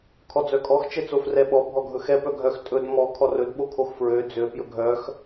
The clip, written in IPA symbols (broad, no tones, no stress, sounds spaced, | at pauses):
kʰ ɔ d͡z œ kʼ ɔ x t͡ʃ ɛ t͡s o f r ɛ ɓ ɔ bʱ ɔ ɡʱ ɵ x ɛ p œ ɡʱ œ x tʼ ɵ d m ɔ kʰ ɔ r ɵ d ɓ o kʰ o x f ɹ ø d͡z ø p j ɵ ɡʱ œ x